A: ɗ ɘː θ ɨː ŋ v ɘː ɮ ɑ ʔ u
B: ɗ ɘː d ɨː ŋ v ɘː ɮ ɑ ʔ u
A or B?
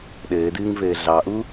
B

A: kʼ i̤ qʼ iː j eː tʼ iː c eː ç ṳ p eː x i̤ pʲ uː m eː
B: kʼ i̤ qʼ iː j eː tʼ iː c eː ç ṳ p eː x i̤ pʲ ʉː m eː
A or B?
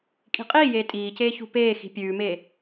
B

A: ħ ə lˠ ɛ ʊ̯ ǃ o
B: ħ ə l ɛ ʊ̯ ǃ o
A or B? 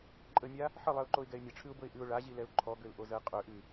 A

